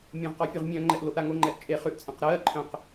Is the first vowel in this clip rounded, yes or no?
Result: yes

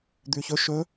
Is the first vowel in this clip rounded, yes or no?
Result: yes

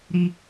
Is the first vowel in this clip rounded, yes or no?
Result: no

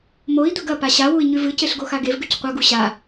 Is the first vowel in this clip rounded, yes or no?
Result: yes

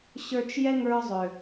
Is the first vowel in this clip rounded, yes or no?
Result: no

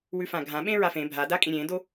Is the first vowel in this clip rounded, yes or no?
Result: yes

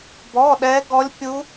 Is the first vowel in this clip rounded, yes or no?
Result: yes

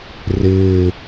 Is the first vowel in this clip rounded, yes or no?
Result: no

